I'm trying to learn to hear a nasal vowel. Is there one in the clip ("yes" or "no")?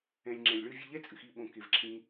yes